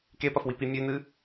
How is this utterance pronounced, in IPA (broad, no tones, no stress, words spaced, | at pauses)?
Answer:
kepɐfwipi mʲʉnɨ